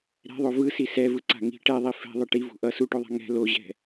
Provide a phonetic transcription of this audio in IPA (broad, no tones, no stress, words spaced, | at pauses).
ɾɛ̤ðˤo vɯsi sɛvɯǀa̤ ŋi̤ ʈɛðˤi fɛ̤ðˤɯ ʈivṳ ʔʌ suʈoðˤa̤ ŋɛ̤ loʑɛ̤